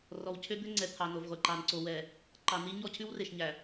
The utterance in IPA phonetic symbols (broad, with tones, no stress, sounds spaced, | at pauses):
r ɔ˨ w cʰ ø˦ d̪ ø˦ ŋ͡ǀ ɛ˨ t̪ʰ ɑ˨ n o˨ v ʁʷ e˨ ǃ ɑ˨ n ǀ o˨ w ɛ˨ | ǃ ɑ˨ n i˦ ɲ ɔ˦ cʰ ʉ˦ w r e˨ ʃ ɲ æ˨